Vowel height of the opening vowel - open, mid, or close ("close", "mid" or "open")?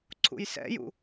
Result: close